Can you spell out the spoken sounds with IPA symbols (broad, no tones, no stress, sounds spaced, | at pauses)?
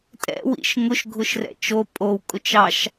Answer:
tʼ ɛ̰ w ḭ ʃ ŋ ʊ ʃ ɡʱ ʊ ʃ r ɛ̰ t͡ʃ o pʼ o w kʼ ʊ t͡ʃ ɑ ʃ